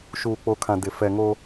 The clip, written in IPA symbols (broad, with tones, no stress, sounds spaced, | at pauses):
ʃ uː˨ k͡p o˨ kʰ ã˨ d ɪ˨ f ɛ˨ ŋ o˦